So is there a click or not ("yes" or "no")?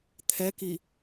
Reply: no